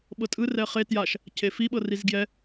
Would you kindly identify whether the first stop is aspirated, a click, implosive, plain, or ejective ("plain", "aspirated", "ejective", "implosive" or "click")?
implosive